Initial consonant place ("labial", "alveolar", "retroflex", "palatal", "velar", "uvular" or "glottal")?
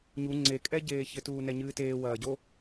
palatal